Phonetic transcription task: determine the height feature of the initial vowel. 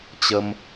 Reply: mid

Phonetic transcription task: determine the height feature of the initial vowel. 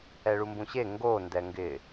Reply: mid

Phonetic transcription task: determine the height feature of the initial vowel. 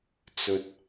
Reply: mid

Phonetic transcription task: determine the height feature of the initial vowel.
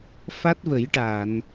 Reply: low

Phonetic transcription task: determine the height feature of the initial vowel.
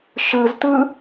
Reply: high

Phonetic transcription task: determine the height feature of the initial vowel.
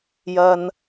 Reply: low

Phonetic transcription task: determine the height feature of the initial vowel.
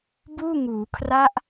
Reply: high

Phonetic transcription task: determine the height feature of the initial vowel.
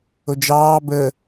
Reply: mid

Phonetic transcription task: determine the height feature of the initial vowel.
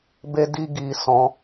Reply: mid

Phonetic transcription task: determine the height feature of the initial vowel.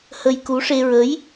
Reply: mid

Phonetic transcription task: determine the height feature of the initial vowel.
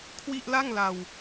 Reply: high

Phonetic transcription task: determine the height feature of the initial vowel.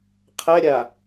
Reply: low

